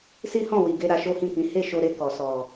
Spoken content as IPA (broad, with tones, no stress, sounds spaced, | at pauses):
s i˦ h ɔ̃˦˨ w i˨ ɡ e˧ ɾ a˧ ʃ o˦ h ĩ˦˨ k ĩ˨˦ h e˦˨ ʃ o˧ ɾ e˧ k ɔ˨ s ɔ˨